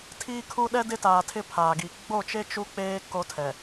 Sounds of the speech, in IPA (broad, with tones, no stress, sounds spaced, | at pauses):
tʰ iː˦ kʰ u˦ ɗ ɛ˦ d ɪ˦ t aː˨ tʰ ɪ˦˨ pʰ aː˨ ɡ i˨ ɡ͡b o˦˨ t͡ʃ e˦ t͡ʃ u˦ k͡p eː˦ k o˦ tʰ ɛ˨